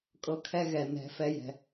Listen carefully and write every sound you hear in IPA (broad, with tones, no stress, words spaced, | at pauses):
kʼɤ˦kʰɛ˦ ɣɛ˨ nɛ̤˨˦ fɛ˧jɛ̤˨